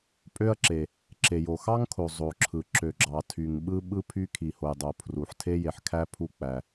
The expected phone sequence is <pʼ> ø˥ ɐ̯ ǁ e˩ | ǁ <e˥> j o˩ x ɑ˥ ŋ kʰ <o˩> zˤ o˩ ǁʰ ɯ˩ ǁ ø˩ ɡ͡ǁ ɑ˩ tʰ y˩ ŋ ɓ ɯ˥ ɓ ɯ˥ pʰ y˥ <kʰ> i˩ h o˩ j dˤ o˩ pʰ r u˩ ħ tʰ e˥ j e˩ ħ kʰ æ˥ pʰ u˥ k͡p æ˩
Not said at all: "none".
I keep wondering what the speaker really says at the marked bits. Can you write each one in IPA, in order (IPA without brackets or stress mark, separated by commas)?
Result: pʼ, e˩, o˩, kʰ